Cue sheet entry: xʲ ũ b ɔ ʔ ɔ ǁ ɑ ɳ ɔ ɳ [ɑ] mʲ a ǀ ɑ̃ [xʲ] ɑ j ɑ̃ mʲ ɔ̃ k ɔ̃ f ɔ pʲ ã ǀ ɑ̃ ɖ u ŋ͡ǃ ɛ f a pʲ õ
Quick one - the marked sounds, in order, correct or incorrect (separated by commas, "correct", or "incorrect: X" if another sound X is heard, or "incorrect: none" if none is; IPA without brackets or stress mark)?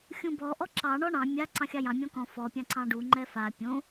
incorrect: ɑ̃, correct